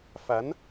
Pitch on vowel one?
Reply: rising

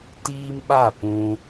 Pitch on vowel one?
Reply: high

